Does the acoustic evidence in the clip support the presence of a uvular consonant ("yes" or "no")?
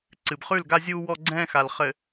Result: yes